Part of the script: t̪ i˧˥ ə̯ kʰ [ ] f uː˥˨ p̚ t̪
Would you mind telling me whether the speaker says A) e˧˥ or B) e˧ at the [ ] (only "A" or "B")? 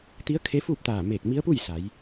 A